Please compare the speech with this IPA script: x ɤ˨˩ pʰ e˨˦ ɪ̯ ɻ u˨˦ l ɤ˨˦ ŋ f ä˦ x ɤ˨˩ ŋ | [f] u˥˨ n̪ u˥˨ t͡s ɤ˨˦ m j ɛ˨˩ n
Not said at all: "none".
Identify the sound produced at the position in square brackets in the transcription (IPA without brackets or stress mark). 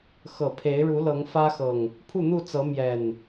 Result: pʰ